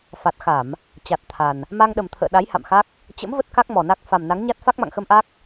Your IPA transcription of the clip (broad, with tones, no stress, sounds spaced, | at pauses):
f a˨˩ t̚ x a˧˩˨ m | t͡ɕ a˨˩ t̚ t̪ʰ a˨˩ n | m a˧ ŋ ɗ ə˨˩ m t̪ʰ ə̰ː˧˨ ɗ a˨˦ j h a̰˧˨ m x a˦˥ k̚ | t͡ɕ ə̰˧˥ m v ə˦˥ t̚ k a˦˥ k̚ m ɔ˨˩ n a˦˥ k̚ f a˨˩ m n a˨˦ ŋ ɲ a˦˥ t̚ f a˦˥ k̚ m a̰˧˨ ŋ x ə˧ m ʔ a˦˥ k̚